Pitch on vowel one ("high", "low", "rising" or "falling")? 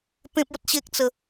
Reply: high